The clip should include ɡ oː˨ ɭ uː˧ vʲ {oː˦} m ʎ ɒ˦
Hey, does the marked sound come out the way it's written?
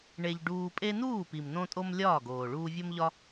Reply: no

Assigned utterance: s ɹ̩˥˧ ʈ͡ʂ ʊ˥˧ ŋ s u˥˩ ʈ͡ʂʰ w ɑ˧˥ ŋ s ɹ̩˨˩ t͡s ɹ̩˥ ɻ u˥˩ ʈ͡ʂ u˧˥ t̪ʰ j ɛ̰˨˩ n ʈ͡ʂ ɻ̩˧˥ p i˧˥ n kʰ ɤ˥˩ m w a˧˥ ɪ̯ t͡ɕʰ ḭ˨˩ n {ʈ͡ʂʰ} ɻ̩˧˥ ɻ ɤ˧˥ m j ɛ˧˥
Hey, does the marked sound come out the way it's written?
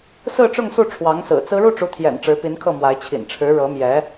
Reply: yes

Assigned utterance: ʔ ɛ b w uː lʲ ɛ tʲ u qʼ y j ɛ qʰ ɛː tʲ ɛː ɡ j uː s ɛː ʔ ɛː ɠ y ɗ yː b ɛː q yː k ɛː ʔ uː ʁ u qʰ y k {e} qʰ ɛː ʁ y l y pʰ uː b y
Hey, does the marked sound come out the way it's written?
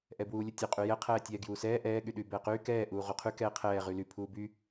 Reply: no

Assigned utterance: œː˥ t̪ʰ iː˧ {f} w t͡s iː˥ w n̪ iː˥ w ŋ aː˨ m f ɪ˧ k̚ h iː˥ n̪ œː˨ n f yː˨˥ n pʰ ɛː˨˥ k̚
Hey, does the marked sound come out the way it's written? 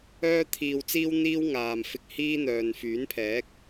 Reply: no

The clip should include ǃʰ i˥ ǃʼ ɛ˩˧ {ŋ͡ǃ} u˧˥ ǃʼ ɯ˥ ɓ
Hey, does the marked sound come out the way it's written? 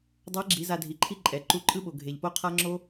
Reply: no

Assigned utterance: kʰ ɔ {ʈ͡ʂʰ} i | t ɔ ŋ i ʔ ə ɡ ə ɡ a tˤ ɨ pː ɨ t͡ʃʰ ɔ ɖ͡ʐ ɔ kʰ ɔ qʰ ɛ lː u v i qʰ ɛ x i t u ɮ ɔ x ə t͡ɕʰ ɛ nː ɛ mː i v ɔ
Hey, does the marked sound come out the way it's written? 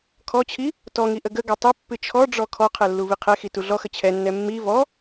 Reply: no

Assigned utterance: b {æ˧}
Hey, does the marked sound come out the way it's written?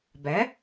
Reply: no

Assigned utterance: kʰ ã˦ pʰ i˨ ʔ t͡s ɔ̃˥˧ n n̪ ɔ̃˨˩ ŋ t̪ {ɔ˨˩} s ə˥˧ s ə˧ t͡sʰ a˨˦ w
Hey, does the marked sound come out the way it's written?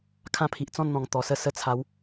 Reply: yes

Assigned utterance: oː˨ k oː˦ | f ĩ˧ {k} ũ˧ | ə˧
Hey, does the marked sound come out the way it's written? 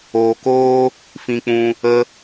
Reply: no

